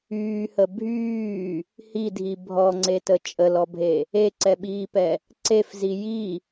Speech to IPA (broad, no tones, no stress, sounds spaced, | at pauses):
yː h ə bʱ yː | h i dʱ i bʱ ɔ ŋ͡ǀ e t ə t͡ʃʼ ə l ɔ bʱ e | e ǀ ɛ ɓ iː p ɛ | ǀ e f z i j i